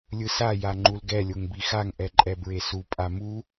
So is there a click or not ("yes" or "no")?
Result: yes